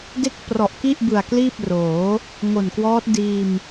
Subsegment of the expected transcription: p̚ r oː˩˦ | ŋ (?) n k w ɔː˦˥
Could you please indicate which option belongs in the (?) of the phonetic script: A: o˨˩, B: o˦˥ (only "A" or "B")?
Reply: A